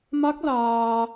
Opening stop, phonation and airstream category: plain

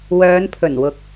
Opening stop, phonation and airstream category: aspirated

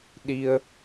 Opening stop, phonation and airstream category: implosive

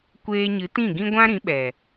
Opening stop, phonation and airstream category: plain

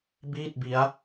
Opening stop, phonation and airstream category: plain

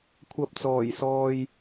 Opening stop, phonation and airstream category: aspirated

